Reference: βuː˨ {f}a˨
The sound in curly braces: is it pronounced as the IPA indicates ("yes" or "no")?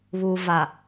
no